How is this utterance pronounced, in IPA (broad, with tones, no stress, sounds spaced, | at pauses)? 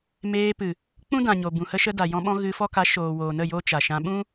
m eː˧ p ɨ˨ | k͡p ũ˦ d ã˨ ɲ o˨ b ũ˨ h ə˧ ʃ ə˧ d a˨ j ɔ̃˧ ɓ ɔ̃˧ ɣ ɨ˧ f ɔ˦ k a˨˦ ʃ oː˨ w oː˨ n ə˦˨ j o˦ t͡ʃ a˨ ʃ ã˧ ɓ ũ˦